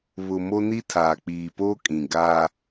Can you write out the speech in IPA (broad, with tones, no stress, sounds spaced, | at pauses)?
β ʊ˨ m o˦ n i˦ tʰ aː˨ k͡p iː˨ p oː˦ kʼ ĩ˨ ɡ aː˦